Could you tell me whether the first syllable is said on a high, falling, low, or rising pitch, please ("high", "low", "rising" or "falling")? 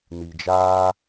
low